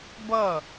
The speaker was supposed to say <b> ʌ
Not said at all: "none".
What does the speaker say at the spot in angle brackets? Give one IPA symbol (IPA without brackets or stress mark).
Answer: b